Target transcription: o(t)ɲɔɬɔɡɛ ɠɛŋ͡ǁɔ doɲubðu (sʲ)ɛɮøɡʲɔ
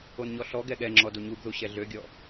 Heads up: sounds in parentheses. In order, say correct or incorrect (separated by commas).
incorrect, incorrect